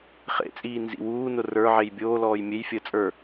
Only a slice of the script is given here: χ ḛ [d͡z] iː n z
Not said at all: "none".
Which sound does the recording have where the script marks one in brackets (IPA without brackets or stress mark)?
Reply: t͡sʼ